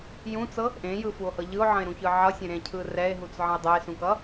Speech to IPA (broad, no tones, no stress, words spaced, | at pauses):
jũt͡sɤ | ʔẽjɯfuo̯hɤ ʎɯo̯ʕə̃e̯ɾũçɯ ʕʌsʲẽɾẽcʰɯ rɛe̯ɦut͡sʕə̃e̯ dˤɛe̯sũkʌ